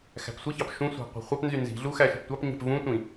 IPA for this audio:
x æ̤ p sʷ i ç ɑ p ʃ ũ sʷ æ̤ qʷ e̤ χʷ ɑ p n z y n z i̤ ɮ u x æ ʃ e̤ p tʷ ɑ p ɲ e̤ p v ũ tʷ ĩ

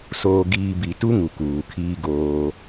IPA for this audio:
s oː˨ ɡ iː˨ b i˨ t u˦ ŋ u˨ k uː˨ kʰ iː˦ ɡ oː˦

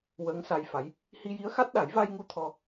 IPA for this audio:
w əː˧˥ ŋ s a˧ j f a˧˥ j | h i˧ j i˧˥ ə̯ x a˦˥ t̚ ɗ a˨˩˦ j v a˧ j ŋ u˧ t̪ʰ ɔ˧

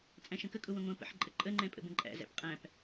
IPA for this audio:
t͡sʼ æ̃ ʃ ə̃ k ə kʼ ʊ w ə̃ ŋʷ ə̃ː p ə̰ ħ ǃʼ ə ǃʼ ə ŋ͡ǃ ɛ̃ pʼ ə̰ b ə̃ ǃʼ æ̰ z æ̰ p qʼ æ̃ p

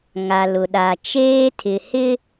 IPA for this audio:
ŋ a˨ l ʊ˨ ɗ a˨ t͡ʃ eː˦ tʰ ɪ˨ h ɪ˦

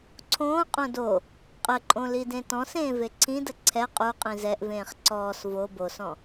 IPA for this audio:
ǀʰ õː qʼ õ d o | qʼ ə ǃʼ õ l i d ẽ t ɔ̃ s ẽː v e ǀʰ ĩ d ə ǀʰ ɛ qʼ u qʼ ĩ z ɛ ʔ v ẽː χ ǀ ɔː s v o b o s ɔ̃

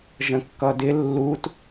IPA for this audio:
ʒ ə̃ kː ʌ d ɪ lː u t

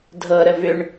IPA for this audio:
dʱ ɤ ɾ ə v ʏ ɳ

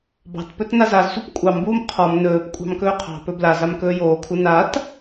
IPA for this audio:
b ɑ̤ t p ɵ t n a z a z sʷ e p kʷʼ ɑ m b uː m qʰ ɔ m n ɵː p kʷʼ ɑ̤ m k ɵː qʰ ɑ̤ p ɵ b l a z a m k ɵː j oː kʰ u n a t

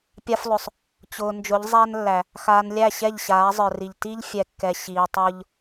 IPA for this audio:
pʲ a˦ f lˠ ʊ˨ sˤ | t͡ɕ ʊː˨ n d͡ʒ ʊ˨˦ ʎ zˤ æ˦ n lː æ˨ | x aː˨ n lʲ æ˦˨ ɕ ɛ˦˨ ʎ ɕ aː˨˦ zˤ ə˞˨ r i˨ ʎ t i˦ ʎ fʲ ɛ˨ kː ɛ˨ ɕ iː˨ tˤ ʊː˦ ʎ

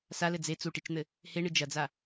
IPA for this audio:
s a l ɘ d͡z e t͡s u ʈ i t͡ʃ n̪ ɘ | h e ɳ ɨ d͡ʒ ɐ d͡z a

